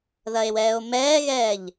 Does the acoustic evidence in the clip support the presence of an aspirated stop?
no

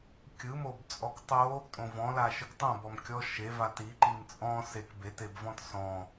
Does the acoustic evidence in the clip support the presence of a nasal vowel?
yes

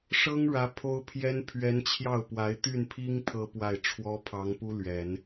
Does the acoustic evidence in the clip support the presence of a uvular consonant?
no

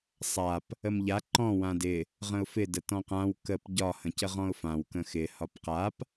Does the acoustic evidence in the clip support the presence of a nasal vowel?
yes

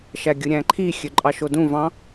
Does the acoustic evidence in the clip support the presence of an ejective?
yes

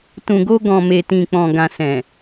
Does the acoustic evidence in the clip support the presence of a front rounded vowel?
no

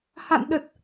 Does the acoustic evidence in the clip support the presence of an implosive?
yes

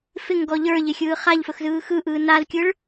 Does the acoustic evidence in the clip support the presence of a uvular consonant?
yes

